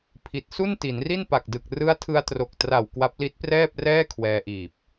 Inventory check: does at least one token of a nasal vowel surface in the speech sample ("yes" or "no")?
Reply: no